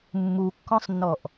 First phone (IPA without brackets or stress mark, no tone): mː